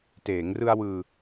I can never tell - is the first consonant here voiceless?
yes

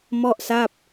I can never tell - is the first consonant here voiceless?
no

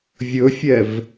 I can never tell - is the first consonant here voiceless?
no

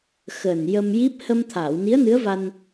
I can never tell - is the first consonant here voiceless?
yes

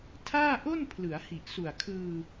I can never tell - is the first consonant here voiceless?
yes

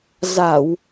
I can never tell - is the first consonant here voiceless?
no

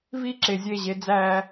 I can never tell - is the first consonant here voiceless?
no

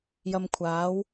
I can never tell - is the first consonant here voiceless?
no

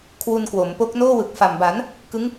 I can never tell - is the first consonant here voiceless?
yes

